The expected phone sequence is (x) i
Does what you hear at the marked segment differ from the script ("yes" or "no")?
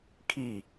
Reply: yes